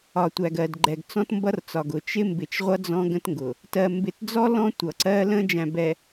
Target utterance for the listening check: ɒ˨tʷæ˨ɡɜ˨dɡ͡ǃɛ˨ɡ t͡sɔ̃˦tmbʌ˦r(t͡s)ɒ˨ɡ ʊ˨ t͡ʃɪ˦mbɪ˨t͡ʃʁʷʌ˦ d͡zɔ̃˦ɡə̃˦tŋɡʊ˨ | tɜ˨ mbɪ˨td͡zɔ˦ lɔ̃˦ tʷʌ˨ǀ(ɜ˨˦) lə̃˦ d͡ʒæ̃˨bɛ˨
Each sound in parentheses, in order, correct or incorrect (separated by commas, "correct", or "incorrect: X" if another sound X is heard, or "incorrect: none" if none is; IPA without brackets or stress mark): correct, incorrect: ɜ˦